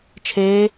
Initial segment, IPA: t͡ʃʰ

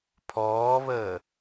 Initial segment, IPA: pʰ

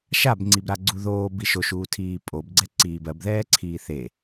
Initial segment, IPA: ʃ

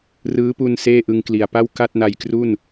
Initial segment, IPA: r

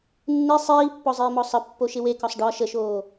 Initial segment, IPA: nː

